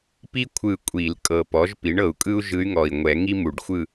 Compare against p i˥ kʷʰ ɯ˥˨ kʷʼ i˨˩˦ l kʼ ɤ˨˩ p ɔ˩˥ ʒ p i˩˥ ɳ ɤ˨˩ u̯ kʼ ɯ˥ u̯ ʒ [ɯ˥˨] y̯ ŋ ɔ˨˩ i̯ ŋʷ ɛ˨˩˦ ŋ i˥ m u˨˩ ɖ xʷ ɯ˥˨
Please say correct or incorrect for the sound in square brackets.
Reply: incorrect: ɯ˧˥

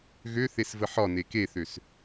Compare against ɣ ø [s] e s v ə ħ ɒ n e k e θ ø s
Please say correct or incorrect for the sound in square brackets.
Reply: incorrect: θ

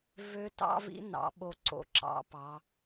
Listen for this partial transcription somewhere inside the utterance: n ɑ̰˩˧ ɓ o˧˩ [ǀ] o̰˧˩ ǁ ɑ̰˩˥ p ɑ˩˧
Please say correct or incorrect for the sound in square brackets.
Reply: correct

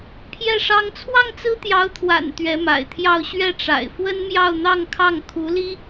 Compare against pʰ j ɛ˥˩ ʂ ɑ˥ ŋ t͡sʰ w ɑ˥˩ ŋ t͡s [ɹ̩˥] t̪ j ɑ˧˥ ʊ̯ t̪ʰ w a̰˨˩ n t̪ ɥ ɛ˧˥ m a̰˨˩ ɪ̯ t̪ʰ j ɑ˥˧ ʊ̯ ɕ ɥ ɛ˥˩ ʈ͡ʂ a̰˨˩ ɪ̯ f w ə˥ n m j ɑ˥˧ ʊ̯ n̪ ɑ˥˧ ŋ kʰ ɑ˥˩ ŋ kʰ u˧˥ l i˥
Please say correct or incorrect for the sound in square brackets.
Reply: correct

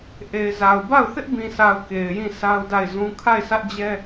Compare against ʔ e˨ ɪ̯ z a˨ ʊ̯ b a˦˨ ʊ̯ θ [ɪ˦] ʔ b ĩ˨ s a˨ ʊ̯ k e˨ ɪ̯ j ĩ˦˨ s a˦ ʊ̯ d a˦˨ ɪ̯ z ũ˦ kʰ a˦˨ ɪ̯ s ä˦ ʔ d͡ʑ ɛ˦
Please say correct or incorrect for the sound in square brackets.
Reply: correct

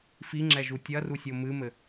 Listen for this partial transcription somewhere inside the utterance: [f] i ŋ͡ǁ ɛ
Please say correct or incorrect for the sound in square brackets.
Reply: correct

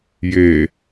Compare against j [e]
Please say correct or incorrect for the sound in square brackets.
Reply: correct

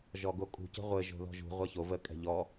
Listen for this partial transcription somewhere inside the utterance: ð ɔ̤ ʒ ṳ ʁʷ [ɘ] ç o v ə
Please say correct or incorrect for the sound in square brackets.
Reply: incorrect: ɛ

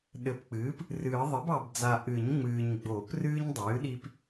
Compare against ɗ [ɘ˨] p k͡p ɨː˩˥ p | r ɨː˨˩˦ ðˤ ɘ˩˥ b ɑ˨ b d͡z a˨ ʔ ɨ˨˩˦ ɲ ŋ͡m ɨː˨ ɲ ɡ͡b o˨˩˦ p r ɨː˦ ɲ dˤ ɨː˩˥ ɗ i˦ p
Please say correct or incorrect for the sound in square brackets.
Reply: correct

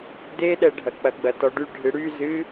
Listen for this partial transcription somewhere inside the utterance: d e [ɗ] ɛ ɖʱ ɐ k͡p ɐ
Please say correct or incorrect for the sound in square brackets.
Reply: correct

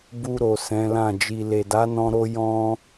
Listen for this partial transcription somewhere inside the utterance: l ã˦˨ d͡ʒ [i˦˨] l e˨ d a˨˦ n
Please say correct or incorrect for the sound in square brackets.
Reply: incorrect: i˨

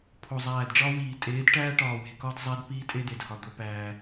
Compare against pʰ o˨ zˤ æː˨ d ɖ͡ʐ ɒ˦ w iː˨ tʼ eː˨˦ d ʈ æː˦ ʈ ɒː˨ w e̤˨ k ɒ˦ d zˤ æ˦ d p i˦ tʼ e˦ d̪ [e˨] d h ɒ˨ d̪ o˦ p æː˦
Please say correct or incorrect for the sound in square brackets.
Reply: correct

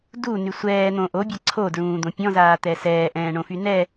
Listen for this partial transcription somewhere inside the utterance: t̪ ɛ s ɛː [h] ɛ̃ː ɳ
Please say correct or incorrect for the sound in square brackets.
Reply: incorrect: ʔ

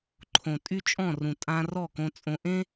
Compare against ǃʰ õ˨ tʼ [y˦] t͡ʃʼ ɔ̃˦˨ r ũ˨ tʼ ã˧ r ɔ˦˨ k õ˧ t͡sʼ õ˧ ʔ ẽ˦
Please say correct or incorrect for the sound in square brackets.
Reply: correct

